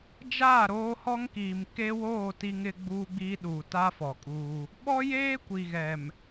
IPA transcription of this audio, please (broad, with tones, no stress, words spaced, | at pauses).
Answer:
d͡ʒaː˦˨ɾoː˦ hɔ˦ŋkiː˨mkeː˦woː˦˨ ti˦ŋɪ˦ɡ͡buː˦ɡ͡biː˦ ɗuː˨ta˦ fɔ˨kʼuː˦ | ɓɔ˦jeː˦ kʷi˨ɣɛ˨m